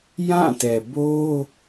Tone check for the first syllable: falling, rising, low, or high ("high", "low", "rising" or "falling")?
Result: falling